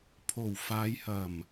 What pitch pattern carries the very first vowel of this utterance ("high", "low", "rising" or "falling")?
low